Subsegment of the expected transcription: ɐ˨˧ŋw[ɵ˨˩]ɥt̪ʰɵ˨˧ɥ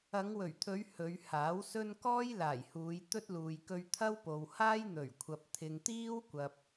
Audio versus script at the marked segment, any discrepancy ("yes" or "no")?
no